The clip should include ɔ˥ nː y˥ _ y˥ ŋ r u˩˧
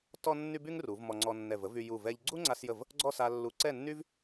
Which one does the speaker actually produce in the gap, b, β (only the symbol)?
b